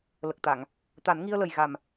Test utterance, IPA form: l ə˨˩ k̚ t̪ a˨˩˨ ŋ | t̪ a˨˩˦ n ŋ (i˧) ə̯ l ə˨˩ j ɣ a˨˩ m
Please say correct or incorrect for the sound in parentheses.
correct